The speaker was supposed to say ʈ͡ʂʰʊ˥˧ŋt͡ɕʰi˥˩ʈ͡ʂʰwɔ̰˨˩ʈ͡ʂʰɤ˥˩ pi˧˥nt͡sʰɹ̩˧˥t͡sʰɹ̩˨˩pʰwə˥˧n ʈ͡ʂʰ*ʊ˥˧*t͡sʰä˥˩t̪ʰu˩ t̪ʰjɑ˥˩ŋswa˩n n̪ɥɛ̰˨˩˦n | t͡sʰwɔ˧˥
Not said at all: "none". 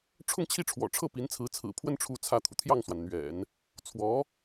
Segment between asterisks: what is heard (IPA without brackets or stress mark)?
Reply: u˥˧